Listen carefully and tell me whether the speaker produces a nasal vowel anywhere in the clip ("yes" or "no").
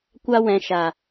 yes